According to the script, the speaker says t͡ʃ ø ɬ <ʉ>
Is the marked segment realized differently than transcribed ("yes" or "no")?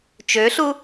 yes